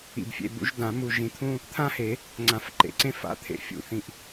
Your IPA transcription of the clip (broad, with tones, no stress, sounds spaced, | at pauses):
ḭ˩˧˩ b fʲ ḛ˩˧˩ b ṵ˨˩˦ ʒ d ã˨˩˦ m u˧˩ ʒ ĩ˨˩˦ t̪ʰ ũ˦ | t̪ʰ ã˦ h e˨˩˦ | ŋ͡ǀ ã˨˩˦ f ǃ ḛ˨˩˦ ǀ ẽ˦ f a̰˨˥ t̪ʰ ḛ˨˩˦ fʲ ṵ˧˩ θ ĩ˧˩ ʔ